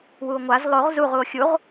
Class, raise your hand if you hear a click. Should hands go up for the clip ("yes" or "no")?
no